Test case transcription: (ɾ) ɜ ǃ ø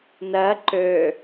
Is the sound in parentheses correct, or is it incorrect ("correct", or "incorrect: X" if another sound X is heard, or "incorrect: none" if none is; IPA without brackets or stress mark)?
incorrect: n